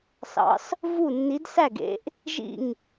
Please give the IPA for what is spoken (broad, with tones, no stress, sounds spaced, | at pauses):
s ɑ̰˨˥ s | v u˥˩ nː i˨˥ d s æ˥˩ ɡ ḛ˨˥ ʔ | ʒ ḭ˥˩ ŋ